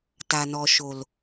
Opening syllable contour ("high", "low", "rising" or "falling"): low